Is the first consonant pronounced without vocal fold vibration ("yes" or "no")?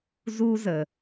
no